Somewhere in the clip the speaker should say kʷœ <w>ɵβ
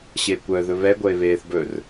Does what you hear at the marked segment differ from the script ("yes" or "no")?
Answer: yes